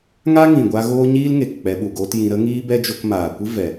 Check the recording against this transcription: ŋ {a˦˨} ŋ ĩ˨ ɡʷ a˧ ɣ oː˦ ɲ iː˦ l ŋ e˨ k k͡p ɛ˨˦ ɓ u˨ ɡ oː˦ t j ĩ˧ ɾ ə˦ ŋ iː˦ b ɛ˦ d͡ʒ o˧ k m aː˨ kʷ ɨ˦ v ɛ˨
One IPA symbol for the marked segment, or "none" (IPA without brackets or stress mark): a˦